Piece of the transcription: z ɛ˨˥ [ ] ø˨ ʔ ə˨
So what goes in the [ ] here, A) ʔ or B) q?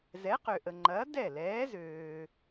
B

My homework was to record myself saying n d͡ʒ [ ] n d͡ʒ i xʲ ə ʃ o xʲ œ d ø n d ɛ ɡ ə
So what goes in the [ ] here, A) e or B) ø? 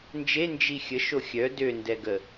A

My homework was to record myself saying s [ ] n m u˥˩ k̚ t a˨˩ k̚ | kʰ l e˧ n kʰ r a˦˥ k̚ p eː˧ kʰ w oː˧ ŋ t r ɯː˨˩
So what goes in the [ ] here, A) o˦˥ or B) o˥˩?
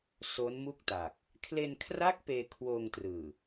A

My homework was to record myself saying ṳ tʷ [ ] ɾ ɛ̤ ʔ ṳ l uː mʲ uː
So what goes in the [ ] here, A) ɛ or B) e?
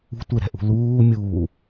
B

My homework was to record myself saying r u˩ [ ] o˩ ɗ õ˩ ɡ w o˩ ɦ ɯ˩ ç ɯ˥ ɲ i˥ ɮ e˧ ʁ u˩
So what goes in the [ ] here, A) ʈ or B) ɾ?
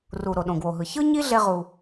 B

